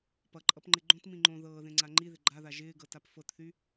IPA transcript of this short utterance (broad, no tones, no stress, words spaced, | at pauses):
pʌǃʼʌpŋ͡ǃɪ ɡ͡ǃõtmĩ ŋ͡ǃõ ðɤːðẽŋ͡ǀa ŋ͡ǃiðɪ ɡ͡ǃaða ʒɪːɡɤtap fɤtθy